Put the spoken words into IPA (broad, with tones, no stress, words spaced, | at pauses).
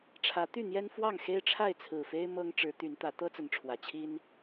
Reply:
ʈ͡ʂʰä˨˦t̪y˥˨n̪jɛ˦nfwɑ˥˨ŋ xe˦ɪ̯ʈ͡ʂʰa˥˨ɪ̯t͡sʰɹ̩˨˩fe˦ɪ̯ mɤ˦ŋ ʈ͡ʂɻ̩˨˦t̪y˨˦nt̪ä˨˦ t̪ɤ˦t͡sə˨˦nʈ͡ʂʰwä˨˩ t͡ɕʰi˦n